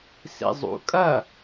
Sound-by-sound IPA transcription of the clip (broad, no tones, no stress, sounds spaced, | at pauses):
s ḭ zˤ ṵ kʼ ɐ